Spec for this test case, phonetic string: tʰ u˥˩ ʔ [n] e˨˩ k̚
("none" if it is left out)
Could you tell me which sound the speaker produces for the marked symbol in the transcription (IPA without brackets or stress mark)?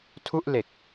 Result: l